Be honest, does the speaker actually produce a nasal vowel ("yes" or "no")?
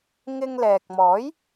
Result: no